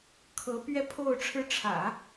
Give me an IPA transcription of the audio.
kʰ ɤ˧˥ p ɥ ɛ˥ pʰ o˥˩ ʊ̯ ʈ͡ʂʰ ɻ̩˧˥ ʈ͡ʂʰ ä̰˨˩˦

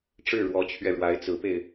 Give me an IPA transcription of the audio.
ʈ͡ʂ ɻ̩˥˩ ɻ w ɔ˧˥ t͡ɕʰ ɥ ɛ˧ ɻ w a˧˥ ɪ̯ t͡s ɹ̩˧˥ p e˧ ɪ̯

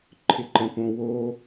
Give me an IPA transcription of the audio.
ǃʰ ɪ ǃ ɛ̃ p õ w o

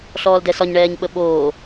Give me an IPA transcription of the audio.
ɬ ɔː l d ɛ s ɒ ɲ ɳ ɛː ɲ ɓ ə ɓ oː

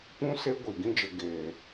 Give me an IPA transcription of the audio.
p ũ˦ s e˦ ɡʷ i˨ ɡ ĩ˧ d͡ʒ ə˨ ɡ eː˨

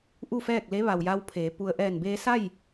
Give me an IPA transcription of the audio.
ʔ u˥˨ f ɛː˥˨ k̚ l e˧˥ ʋ a˩ w j a˧ w pʰ eː˩˧ p u˧ ə̯ ʔ ɛː˧˩ n b eː˧ s a˥˨ j

